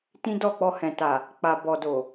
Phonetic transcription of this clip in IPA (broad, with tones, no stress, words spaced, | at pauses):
tĩ˦dɔ˦˨k͡pɔ˧ hɛ̃˨ta˨ | k͡pa˨ bɔ˨do˨